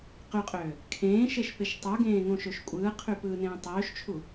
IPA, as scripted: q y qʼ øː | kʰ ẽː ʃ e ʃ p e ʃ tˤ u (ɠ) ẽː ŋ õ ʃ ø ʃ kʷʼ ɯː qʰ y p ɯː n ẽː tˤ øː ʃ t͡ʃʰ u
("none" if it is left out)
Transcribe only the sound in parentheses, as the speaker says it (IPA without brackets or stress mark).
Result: ɡ